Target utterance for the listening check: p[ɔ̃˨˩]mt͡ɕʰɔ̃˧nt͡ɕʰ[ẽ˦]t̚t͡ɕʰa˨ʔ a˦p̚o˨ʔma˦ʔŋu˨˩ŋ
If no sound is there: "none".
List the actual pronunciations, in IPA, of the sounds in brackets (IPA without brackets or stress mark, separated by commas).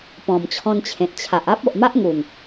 ɔ̃˨˩, ẽ˨